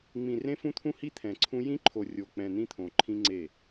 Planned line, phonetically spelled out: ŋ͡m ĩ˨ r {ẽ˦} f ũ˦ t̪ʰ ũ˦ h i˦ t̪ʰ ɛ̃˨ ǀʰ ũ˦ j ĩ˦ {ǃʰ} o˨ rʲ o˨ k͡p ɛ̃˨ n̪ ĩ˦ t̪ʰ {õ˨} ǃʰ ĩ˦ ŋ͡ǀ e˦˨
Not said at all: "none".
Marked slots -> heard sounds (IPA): ẽ˦, ǃʰ, õ˨

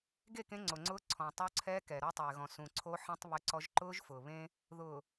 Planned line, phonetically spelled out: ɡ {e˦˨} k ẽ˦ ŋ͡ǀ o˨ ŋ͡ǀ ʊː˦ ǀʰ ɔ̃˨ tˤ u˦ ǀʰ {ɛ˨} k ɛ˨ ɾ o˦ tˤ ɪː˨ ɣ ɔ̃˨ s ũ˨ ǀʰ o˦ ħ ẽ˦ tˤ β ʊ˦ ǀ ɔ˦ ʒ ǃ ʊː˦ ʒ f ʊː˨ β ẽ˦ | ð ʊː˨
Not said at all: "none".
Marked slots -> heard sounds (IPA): e˦˨, ɛ˦

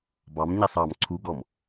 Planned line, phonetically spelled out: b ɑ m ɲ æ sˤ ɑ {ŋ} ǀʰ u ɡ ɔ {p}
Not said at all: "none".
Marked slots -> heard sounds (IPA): m, m

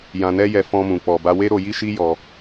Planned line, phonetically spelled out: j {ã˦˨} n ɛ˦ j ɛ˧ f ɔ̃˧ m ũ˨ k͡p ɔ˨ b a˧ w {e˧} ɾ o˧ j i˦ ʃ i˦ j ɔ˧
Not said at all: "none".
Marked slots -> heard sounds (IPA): ã˧, e˦

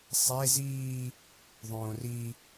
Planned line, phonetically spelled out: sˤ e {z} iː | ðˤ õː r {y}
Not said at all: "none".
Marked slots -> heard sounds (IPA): z, i

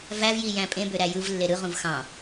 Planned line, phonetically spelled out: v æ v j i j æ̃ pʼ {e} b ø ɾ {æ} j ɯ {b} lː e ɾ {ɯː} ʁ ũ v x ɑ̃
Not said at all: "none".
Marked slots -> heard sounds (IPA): ẽ, æ, v, ɯ

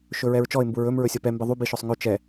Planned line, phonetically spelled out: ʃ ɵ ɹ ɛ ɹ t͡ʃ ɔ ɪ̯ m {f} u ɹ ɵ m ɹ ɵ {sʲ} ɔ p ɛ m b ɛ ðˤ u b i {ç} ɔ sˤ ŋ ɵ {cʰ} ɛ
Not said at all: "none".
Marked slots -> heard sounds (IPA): b, sʲ, ʃ, t͡ʃ

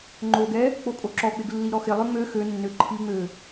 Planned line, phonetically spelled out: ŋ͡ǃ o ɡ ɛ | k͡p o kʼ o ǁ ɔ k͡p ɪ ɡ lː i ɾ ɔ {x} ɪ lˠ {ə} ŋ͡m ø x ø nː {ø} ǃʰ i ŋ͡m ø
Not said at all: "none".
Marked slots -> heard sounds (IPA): x, ø, ø

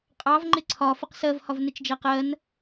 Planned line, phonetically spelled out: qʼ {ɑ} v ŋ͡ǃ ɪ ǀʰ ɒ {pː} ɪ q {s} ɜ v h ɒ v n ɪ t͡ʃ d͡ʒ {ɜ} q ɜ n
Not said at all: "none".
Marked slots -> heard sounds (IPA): ɑ, f, s, ɜ

